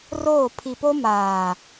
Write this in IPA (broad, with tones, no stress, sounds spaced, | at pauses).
r oː˦˨ pʰ i˨ p o˦ m aː˨